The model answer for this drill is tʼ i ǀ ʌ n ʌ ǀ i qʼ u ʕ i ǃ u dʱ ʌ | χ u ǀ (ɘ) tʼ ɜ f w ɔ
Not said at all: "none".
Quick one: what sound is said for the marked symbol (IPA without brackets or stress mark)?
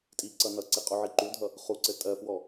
ɘ